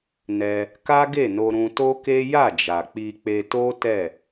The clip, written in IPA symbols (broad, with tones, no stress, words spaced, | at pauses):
nɛ˧ | ka˦ɡe˦˨no˧ ɾũ˧to˦ke˦ ja˦˨d͡ʒa˨ k͡pi˧k͡pe˧to˦ tɛ˦˨